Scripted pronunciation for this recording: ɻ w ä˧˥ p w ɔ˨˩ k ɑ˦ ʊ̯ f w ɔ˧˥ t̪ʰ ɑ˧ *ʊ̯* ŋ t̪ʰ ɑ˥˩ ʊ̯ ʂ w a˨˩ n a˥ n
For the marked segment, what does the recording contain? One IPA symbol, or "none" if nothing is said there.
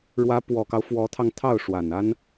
none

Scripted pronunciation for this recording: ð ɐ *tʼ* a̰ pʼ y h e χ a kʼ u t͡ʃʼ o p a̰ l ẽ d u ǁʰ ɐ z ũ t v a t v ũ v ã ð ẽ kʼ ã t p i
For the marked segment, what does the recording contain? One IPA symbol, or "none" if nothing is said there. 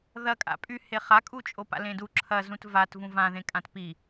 kʼ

